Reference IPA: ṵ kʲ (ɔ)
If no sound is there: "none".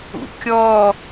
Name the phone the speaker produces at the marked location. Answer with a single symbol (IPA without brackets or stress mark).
ɔ